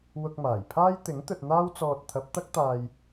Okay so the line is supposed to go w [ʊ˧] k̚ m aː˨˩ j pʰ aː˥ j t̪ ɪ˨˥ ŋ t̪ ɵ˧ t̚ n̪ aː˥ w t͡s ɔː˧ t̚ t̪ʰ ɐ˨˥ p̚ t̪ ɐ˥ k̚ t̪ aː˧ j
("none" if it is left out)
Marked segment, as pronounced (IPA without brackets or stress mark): ʊ˧